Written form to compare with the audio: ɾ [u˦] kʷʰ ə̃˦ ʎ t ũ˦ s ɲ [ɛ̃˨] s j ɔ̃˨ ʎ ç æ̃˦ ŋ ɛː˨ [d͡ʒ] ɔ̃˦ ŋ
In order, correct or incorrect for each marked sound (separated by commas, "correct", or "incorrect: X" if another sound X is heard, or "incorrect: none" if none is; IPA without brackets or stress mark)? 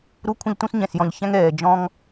correct, correct, correct